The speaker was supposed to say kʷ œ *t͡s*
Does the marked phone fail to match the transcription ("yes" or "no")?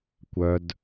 yes